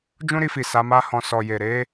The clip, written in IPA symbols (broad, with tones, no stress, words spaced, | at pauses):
d͡ʒũ˦ɾi˧fi˨ sa˨˦ma˦hɔ̃˧ sɔ˨je˨ ɾe˨˦